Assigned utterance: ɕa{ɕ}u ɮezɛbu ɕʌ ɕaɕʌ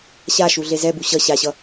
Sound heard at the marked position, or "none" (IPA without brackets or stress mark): ʃ